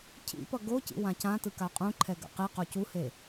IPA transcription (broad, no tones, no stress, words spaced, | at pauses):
cʰḭpʌ ɡocḭ wãcãtɯ kaqʼũǃʰɛ ɡa̰qiqo cuhe